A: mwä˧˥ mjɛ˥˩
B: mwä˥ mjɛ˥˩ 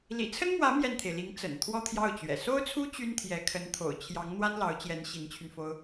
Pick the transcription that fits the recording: A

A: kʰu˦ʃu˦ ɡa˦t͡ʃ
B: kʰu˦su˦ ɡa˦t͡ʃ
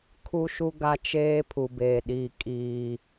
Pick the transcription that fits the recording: A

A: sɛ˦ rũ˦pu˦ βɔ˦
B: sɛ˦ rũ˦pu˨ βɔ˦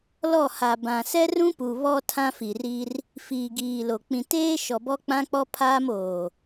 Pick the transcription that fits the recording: B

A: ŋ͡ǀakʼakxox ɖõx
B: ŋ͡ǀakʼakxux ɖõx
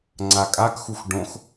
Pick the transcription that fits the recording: B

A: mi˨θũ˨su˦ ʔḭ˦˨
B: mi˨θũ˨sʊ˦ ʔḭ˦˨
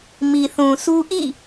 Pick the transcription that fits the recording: A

